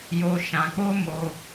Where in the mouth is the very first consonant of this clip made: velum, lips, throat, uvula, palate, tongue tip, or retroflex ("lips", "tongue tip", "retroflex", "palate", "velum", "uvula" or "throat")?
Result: palate